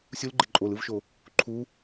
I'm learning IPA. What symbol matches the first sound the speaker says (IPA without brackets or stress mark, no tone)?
sʲ